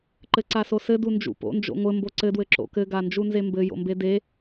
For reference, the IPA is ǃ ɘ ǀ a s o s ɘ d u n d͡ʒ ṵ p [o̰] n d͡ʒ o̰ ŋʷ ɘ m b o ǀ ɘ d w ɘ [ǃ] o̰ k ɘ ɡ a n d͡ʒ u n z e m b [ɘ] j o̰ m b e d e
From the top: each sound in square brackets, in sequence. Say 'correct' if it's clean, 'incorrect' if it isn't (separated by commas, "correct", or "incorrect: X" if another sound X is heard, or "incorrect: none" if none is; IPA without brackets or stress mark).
correct, incorrect: ǁ, correct